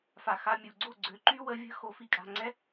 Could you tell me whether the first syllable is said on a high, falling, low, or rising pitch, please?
low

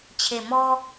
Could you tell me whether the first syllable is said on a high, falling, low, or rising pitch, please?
low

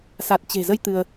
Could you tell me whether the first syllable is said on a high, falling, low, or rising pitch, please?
low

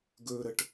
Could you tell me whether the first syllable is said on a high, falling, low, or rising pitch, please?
high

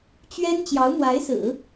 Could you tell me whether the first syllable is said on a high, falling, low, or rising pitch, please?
high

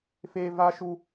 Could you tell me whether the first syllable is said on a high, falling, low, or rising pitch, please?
high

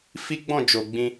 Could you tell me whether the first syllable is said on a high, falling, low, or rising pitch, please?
high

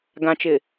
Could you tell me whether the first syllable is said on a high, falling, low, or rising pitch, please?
low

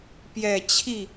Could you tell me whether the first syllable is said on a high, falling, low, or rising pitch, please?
low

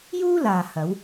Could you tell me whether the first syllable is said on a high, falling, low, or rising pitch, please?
high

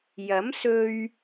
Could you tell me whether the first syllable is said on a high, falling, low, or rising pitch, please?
rising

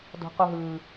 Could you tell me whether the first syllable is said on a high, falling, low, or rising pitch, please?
high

